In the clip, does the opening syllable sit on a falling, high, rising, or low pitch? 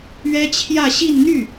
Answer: high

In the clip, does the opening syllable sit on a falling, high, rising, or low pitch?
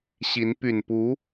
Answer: rising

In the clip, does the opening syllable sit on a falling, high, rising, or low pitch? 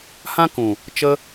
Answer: high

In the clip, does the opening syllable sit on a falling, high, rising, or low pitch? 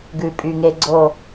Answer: low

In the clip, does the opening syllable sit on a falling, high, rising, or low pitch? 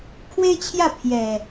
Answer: high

